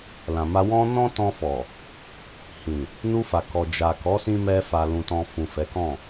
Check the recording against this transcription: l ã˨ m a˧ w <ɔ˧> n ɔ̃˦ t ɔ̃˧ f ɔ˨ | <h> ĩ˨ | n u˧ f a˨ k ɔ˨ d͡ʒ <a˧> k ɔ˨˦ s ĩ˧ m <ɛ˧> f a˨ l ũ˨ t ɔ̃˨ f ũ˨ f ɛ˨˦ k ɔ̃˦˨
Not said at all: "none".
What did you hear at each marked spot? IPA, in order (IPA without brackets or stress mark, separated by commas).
ɔ̃˧, h, a˨, ɛ˧